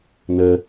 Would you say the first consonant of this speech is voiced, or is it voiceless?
voiced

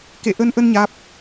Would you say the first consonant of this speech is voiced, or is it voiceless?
voiceless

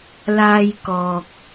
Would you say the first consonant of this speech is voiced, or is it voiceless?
voiced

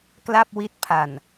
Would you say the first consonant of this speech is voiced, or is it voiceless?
voiceless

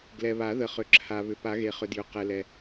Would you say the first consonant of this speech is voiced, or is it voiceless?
voiced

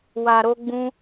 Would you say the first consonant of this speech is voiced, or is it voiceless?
voiced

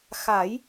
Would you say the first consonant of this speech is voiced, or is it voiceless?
voiceless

